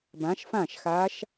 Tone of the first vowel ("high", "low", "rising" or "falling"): rising